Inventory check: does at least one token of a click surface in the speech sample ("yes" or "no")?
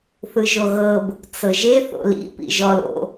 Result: no